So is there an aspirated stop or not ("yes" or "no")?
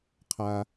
yes